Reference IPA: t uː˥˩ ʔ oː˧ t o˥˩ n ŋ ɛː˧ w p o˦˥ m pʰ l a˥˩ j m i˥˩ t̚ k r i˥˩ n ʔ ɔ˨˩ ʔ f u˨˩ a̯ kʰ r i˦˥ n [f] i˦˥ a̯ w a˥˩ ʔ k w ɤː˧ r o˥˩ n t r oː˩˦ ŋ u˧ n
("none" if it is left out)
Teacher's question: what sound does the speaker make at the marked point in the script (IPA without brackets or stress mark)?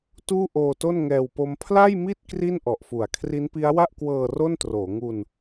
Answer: p